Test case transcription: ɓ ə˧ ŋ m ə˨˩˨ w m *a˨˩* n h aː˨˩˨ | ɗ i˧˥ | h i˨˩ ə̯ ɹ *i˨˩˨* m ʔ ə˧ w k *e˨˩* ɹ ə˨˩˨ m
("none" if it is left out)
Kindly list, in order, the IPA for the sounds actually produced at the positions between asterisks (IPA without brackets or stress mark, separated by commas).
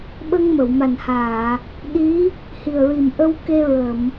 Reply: a˨˩, i˨˩, e˧